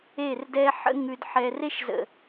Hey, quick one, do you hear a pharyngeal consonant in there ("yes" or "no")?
yes